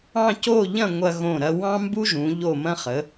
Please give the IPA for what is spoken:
ɑ̃˥˧co˥˧ʎɐ̃˥˧ ŋʷɐ˧ɣõ˧˩ ɾɐ˧wɑ̃˥mbu˥ʒũ˩˧ ʎo˧˩mɐ̃˧χə˩˧

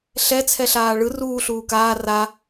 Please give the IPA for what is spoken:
ɬɛ t͡sʰɛɬaːɭɯ ruː ɬuːkaː ra

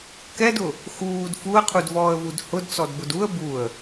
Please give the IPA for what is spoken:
kɛdʊ | xuːd fuə̯qʰudvɔːə̯vud hʊdt͡sɔdbʊd uə̯ buə̯

